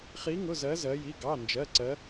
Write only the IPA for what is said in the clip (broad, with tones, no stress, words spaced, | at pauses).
χi˧˥ŋʊ˧˥˧zɜ˧˥ zɜ˧˥ji˧˥˧ ɡɑ˧˥˧nd͡ʒɜ˧˥˧ǀɜ˧˥